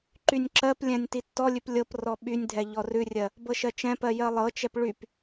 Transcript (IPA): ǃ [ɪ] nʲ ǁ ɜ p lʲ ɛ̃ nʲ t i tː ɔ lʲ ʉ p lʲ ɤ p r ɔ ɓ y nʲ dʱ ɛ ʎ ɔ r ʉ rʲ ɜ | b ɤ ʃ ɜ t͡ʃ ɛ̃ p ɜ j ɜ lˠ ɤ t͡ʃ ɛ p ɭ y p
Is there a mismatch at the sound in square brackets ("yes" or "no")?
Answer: yes